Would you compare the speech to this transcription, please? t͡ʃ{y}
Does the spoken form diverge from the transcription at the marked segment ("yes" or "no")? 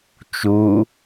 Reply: yes